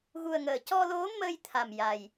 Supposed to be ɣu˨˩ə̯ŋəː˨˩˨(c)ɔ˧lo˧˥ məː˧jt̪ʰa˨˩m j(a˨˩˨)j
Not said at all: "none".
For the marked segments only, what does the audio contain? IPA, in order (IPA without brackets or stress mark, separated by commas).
c, a˨˩